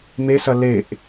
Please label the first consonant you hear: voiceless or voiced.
voiced